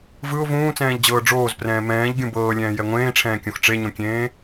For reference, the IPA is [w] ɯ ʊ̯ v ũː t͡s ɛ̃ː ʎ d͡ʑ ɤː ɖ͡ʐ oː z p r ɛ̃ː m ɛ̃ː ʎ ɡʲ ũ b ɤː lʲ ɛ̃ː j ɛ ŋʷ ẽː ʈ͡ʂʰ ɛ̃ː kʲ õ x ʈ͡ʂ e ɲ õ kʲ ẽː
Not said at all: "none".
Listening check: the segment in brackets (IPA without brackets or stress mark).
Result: v